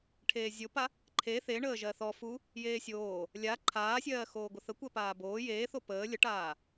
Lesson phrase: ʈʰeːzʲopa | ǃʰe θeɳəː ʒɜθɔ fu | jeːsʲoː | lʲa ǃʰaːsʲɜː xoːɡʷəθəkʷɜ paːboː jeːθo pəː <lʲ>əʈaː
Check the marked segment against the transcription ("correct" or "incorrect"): correct